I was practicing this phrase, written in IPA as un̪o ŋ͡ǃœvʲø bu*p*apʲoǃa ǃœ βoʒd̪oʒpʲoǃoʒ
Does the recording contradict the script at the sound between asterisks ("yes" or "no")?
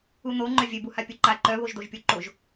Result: yes